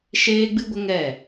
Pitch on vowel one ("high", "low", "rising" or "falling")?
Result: high